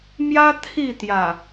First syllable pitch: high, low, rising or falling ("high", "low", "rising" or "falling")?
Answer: high